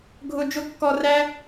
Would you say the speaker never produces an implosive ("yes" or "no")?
yes